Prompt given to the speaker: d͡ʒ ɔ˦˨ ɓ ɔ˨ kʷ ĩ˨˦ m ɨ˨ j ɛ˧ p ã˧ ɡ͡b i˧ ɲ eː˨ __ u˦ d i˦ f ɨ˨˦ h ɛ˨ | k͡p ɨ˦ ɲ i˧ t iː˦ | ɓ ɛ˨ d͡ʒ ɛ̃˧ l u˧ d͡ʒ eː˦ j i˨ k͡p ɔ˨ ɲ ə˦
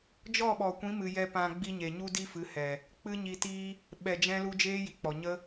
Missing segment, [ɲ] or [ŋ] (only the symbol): ɲ